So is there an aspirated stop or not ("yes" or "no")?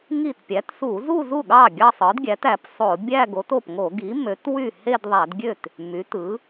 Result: no